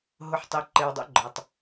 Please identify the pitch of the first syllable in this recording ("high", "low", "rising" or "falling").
low